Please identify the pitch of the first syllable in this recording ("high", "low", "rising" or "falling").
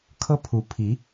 high